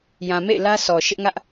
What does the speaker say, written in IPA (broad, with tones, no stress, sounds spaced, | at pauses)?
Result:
j ã˨ m ḛ˦˨ ɪ̯ l ä˦ sʰ ɔ˨ ʃ ɪ˦ ʔ ŋ ä˦ ʔ